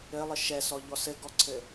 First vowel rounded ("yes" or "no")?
no